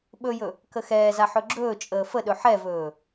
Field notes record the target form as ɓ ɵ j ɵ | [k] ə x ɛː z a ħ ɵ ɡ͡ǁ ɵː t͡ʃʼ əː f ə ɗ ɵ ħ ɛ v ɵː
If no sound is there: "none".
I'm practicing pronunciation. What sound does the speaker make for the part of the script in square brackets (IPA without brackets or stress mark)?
k